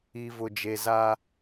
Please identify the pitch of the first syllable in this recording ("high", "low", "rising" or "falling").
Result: low